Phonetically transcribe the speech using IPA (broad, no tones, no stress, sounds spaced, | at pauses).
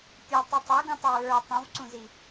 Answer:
pʲ u tˤ ʉ tˤ ə˞ ɡ ũ tˤ i ɹ ə˞ tˤ ũ v ǀ ũ z i